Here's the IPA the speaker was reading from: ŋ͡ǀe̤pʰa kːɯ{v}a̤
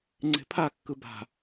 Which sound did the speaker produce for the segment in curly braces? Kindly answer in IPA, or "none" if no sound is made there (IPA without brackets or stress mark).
b